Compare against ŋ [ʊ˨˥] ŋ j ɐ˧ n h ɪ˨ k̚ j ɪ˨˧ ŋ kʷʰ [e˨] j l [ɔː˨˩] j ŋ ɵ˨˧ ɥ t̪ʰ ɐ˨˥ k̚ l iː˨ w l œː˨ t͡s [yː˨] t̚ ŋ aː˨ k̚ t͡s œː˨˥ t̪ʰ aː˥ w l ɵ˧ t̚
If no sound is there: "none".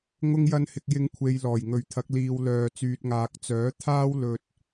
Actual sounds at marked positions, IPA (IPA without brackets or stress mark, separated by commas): ʊ˧, e˨, ɔː˨˩, yː˨